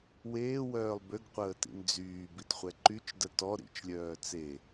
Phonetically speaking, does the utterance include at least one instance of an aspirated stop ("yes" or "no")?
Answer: no